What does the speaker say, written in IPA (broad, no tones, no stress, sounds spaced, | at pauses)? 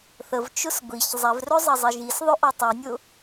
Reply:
θ ə v t͡ʃ ʊ s ɡʷ i ç zˤ ɛ v r ɵ zˤ ɐ zˤ i ʒ i s ðˤ ɵ ʔ ɔ tˤ i nʲ ʊ